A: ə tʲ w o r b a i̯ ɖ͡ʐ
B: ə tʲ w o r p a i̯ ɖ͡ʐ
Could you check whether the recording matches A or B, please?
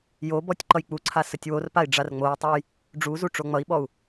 B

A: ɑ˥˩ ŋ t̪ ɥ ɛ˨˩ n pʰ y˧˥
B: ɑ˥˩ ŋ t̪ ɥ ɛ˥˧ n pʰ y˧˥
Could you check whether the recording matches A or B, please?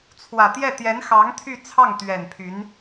A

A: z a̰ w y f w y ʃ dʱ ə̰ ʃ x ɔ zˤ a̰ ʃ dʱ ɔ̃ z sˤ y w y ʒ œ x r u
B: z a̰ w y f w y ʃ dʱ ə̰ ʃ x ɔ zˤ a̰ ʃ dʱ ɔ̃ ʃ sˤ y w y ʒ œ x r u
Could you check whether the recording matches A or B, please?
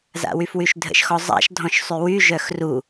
B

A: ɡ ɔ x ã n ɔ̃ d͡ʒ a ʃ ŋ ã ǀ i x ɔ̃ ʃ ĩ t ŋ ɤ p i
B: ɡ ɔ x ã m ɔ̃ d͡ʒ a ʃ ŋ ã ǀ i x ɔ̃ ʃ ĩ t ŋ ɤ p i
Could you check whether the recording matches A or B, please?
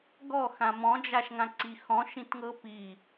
B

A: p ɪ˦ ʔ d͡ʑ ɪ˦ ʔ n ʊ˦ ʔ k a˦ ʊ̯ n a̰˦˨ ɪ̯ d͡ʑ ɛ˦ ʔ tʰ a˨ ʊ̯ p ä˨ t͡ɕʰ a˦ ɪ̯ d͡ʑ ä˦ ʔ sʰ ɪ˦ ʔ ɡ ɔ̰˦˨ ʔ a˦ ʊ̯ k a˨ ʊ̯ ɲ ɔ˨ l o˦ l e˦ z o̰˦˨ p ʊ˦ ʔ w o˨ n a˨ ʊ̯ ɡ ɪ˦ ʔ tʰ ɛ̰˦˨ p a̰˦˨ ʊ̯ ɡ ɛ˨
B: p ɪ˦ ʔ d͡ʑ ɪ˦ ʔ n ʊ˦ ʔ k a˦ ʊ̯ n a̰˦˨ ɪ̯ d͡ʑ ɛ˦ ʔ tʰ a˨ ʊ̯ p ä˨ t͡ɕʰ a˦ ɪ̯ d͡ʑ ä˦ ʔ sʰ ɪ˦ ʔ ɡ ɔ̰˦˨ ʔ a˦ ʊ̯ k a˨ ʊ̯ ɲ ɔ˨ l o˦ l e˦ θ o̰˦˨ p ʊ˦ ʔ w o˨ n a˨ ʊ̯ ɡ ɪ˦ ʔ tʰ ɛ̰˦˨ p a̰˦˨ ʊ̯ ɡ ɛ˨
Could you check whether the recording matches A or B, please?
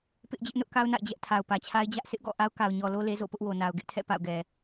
A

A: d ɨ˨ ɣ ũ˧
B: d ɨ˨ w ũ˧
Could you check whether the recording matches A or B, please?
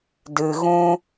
A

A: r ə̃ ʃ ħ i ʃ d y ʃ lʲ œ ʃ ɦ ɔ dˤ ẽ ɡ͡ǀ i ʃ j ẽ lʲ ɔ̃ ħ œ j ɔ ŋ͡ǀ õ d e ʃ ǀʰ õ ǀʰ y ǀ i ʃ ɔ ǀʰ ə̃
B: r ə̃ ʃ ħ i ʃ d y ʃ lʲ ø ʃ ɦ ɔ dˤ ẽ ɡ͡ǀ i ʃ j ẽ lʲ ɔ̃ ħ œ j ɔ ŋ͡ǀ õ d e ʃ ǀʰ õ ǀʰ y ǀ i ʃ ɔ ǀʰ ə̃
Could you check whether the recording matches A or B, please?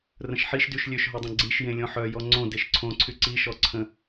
B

